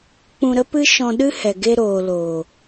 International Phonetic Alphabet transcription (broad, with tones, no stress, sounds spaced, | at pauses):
k͡p ũ˧ ɾ ə˦ p ɨ˦ ʃ ɔ̃˧ ɗ ɨ˦ h ɛ˨ ɡ e˧ ɾ oː˨ l oː˨